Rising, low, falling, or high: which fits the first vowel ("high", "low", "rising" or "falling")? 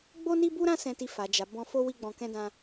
high